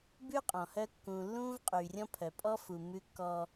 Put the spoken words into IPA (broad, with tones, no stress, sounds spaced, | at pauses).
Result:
b ʉ˦ qʼ ɔ̃˨ h œ˦ kː ũː˨ lː ũː˦ v qʼ yː˨ rʲ ɔ̃˦ pʰ œ˨ pʼ ɔ˦ f u˨ m ʉ˦ kː ɔ˦